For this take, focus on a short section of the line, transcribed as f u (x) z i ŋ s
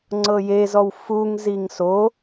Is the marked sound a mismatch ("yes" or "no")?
yes